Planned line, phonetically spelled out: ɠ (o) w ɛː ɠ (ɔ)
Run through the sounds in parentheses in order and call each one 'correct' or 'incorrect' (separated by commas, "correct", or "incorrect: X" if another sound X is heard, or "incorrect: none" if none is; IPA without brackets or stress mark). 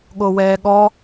correct, correct